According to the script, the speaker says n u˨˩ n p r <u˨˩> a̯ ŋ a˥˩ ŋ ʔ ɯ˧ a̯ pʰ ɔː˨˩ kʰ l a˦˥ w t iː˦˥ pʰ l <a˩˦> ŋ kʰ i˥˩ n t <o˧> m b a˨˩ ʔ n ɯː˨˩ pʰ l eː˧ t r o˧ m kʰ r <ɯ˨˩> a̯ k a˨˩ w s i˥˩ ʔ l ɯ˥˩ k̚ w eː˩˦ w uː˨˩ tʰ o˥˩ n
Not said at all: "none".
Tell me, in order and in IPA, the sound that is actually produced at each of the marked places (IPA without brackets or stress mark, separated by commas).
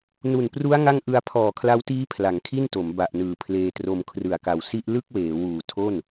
u˦˥, a˩˦, o˩˦, ɯ˨˩